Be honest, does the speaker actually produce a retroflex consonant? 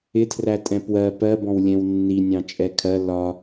no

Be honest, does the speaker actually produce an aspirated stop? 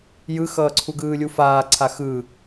yes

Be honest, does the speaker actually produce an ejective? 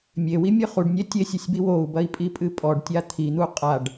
yes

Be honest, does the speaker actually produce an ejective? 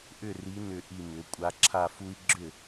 yes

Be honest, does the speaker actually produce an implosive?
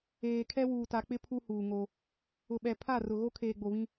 yes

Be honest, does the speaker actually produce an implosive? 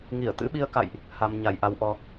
yes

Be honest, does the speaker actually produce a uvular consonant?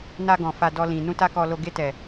no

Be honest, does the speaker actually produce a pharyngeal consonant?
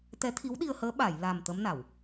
no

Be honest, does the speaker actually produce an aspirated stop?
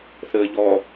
no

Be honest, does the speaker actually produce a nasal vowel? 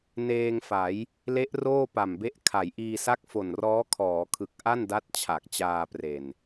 no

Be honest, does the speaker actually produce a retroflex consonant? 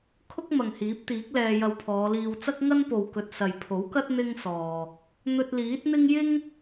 no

